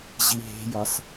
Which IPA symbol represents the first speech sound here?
ʑ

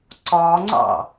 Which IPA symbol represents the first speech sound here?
ǀ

